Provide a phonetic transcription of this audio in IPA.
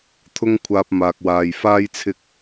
t̪ʰʊ˥ŋkʷʰaː˧p̚ maː˨k̚waː˨j faː˥jt͡sʰɪ˥k̚

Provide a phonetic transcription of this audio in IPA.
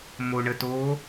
moɳəto

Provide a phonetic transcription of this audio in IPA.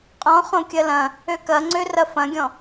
qʼɔ̃ χõkʲɐlɐ̃ | økɐŋ͡ǀø rɐfɐ̃ɡʲɔ̃

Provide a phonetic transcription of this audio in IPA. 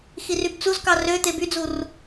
xirybt͡suzkɑ rø t̪ebyd͡zur

